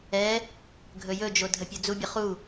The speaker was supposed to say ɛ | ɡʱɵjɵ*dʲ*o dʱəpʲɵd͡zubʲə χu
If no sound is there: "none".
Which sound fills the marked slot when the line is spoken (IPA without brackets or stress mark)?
d͡ʒ